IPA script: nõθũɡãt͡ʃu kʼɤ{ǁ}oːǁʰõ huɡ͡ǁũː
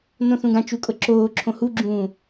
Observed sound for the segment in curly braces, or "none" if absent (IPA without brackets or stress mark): ǁ